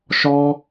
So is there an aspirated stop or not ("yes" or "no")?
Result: no